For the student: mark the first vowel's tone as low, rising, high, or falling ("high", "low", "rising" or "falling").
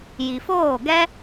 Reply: low